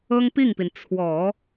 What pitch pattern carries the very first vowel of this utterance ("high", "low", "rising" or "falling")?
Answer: high